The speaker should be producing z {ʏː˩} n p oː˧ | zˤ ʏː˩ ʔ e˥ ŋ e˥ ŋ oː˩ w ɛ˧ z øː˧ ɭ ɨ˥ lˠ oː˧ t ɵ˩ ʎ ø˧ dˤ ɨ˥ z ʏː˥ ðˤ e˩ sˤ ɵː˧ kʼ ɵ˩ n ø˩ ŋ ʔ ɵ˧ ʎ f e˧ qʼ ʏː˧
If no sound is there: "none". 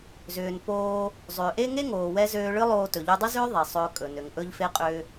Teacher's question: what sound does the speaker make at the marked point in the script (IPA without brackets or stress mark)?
ʏː˩